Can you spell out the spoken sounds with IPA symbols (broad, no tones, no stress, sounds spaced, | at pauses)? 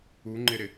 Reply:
u ŋ͡ǃ ɪ ɾ ɪ